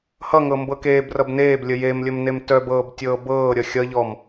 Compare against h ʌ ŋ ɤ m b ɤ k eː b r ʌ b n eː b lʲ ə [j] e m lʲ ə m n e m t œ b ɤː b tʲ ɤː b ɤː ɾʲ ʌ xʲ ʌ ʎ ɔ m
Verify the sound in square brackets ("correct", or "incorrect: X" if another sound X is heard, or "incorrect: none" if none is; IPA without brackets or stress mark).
correct